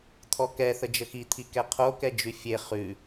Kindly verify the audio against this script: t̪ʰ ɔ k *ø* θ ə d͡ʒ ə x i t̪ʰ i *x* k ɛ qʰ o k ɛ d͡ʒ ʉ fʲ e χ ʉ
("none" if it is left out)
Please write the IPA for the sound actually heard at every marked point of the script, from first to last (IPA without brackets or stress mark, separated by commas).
ɛ, none